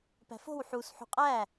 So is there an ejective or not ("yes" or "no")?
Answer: yes